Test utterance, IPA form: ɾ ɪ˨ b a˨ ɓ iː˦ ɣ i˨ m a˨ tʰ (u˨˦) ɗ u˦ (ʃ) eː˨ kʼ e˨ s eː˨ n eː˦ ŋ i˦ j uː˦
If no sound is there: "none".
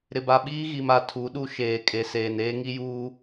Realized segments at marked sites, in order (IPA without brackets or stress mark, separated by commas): u˨˦, ʃ